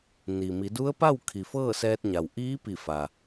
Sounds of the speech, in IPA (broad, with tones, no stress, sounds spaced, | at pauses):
n i˩ m i˩˧ d u˧˥ ə̯ p a˥˨ w kʰ i˩ f ɤː˥˨ s ɛː˧ t̚ ɲ a˩ w ʔ iː˧˥ p i˧˩ f a˩